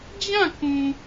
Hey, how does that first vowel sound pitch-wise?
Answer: falling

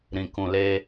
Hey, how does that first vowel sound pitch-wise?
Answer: low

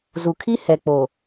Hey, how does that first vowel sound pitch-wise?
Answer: low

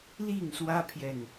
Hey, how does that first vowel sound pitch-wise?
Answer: falling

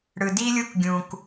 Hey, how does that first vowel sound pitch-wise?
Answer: low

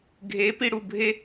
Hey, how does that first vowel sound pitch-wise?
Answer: rising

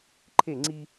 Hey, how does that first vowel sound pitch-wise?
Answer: falling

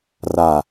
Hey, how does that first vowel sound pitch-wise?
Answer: low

